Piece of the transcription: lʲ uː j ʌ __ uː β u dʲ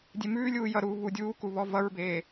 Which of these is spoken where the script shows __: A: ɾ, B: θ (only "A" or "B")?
A